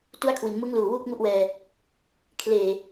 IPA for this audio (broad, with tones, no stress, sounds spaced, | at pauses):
t u˥˩ a̯ kʰ w i˩˦ n m ɯ˦˥ ŋ l uː˨˩ w uː˥˩ k̚ ŋ u˥˩ ʔ w ɛː˧ | kʰ l eː˨˩